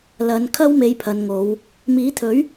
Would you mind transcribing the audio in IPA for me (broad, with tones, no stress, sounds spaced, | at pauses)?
l ɐ˨˧ n kʰ ɐ˥ w m e˨ j pʰ ɐ˨ n ŋ o˨˧ w | m iː˨˥ t̪ʰ ɵ˨˥ ɥ